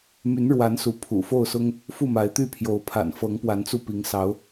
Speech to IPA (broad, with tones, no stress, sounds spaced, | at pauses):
m y˨˦ n ɻ w a˨˦ n s u˨˦ pʰ ṵ˨˩ f o˥˨ ʊ̯ s ʊ˦ ŋ | f u˥˨ m a˨˦ ɪ̯ t̪ y˥˨ pʰ j o˨˦ ʊ̯ pʰ a̰˨˩ n f ɤ˨˦ ŋ p w a˨˦ n t͡s u˧ p i˨˦ ŋ s ɑ˨˦ ʊ̯